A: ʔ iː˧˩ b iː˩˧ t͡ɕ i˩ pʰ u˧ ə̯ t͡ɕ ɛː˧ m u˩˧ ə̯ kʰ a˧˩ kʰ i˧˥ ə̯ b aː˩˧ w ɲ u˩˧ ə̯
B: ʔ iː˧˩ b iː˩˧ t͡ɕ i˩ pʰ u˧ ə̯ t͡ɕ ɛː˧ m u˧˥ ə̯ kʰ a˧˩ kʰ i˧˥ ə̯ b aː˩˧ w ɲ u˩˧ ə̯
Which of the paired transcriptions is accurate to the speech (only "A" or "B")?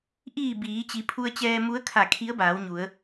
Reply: B